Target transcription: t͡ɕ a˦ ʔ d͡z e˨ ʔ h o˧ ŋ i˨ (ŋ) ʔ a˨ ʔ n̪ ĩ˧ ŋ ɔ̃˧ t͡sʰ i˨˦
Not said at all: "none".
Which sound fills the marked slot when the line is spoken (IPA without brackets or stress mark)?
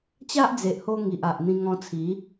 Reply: none